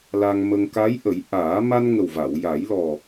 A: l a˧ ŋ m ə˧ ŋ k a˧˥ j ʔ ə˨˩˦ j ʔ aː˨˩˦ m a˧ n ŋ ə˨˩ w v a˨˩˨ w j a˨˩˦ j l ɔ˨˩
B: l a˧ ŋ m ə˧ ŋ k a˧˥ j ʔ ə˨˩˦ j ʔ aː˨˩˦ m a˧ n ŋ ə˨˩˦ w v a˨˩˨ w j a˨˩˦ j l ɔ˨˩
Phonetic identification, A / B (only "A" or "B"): A